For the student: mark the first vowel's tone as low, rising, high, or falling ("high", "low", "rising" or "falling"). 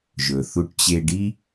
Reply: low